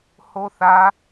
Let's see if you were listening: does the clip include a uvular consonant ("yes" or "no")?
no